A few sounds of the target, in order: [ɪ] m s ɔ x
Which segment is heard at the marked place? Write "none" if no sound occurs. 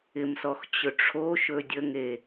ɪ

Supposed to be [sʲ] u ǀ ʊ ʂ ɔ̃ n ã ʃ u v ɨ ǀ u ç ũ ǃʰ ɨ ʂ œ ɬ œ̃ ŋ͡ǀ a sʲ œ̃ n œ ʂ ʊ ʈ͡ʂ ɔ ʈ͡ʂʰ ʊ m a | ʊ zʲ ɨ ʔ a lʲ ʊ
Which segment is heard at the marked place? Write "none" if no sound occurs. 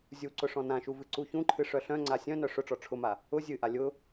zʲ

